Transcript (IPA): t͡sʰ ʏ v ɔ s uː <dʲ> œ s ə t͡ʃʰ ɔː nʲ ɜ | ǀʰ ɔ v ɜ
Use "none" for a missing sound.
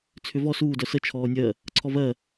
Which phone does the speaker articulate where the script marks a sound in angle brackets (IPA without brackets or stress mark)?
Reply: d